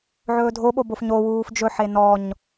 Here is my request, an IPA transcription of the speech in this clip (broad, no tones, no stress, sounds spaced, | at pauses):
ʕ ɵː dʱ o ɓ o b o f ɲ o w uː f d͡ʒ ɵ ħ e n ɔ ɲ